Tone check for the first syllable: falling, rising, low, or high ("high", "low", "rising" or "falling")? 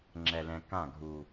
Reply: low